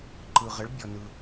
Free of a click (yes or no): no